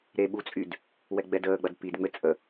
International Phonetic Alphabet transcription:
ɾ e ɓ u t͡sʼ y d | w ɛ ɡ͡b ɛ d əː ɡ͡b ɐ d p i d ŋ͡m ɘ t͡sʼ ə

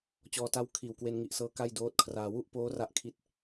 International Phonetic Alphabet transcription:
t͡ɕ ɔː˧ t a˦˥ w kʰ iː˨˩ w k w e˧ n ŋ i˨˩ ʔ s ɤː˦˥ k a˥˩ j d oː˦˥ t̚ kʰ r aː˧ w u˥˩ ʔ p oː˦˥ r a˥˩ ʔ kʰ i˦˥ t̚

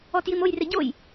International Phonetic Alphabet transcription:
ɔ t j i m o j r e ɟ o j

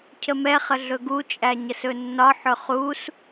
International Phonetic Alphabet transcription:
cʰ ə m ɛ χ ə ɮ ɵ ɡ u t͡ʃʼ æ ɲ ə s ɵ nː ɒ ħ ɵ χ u s

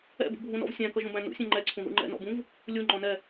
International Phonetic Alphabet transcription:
ɛ̰ b ṵ bʱ ũ n ɔ̰ v sʲ æ̃ k ʌ ʒ ũ b æ̃ n ṵ sʲ ɛ̃ ŋ͡ǃ ɛ ǀʰ ũ ð ṵ ŋ͡ǃ ɛ̰ n ɔ̰ b ũ v | lʲ u ŋ͡ǃ ɔ̃ n ɛ

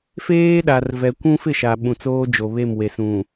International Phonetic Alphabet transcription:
f eː˦ ɗ a˨ r v ɛ˨ kʷ ũ˦ f ɪ˦˨ ʃ a˨ ɓ ũ˨ t͡s oː˦ d͡ʒ o˨ β e˦˨ m w e˨ s ũ˨

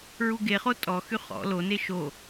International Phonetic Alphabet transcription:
ɹ u ɡ e χ o tʼ ɔ x y χ ɔ̰ l o n e ʃ o

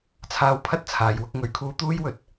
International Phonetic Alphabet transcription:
t͡sʰ aː˧ w pʰ ɐ˥ t̚ t͡sʰ aː˨˧ j w ʊ˧ k̚ ŋ ɵ˨˥ ɥ kʰ uː˧ t̪ uː˥ j w ɵ˨ t̚

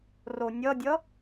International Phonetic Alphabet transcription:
r o nʲ ʌ dʲ ʌ

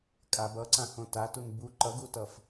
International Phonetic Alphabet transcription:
kʼ a b ʌ ǀ ã h õ t a t u n b u ǃ ʌ ɡ u t ʌ f

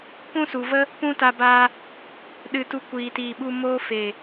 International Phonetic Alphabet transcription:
p ũ˦ s u˨ v ə˦ | p ũ˦ t a˧ b aː˧ | ɗ ɨ˧ t u˧ kʷ iː˨ t iː˨ ɓ u˧ m oː˦ f eː˨

